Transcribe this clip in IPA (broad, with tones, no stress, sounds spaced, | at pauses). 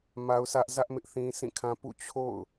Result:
m a˦ ʊ̯ sʰ ä˦ ʔ z ä˦ ʔ m ɪ˦ ʔ θ ĩ˦ sʰ ĩ˦˨ kʰ ã˦ p ṵ˦˨ t͡ɕʰ o̰˦˨ ʊ̯